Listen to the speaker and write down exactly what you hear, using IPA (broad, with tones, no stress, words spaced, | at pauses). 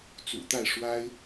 t͡sṵ˨˩t̪a˥˩ɪ̯ ʂwa˥ɪ̯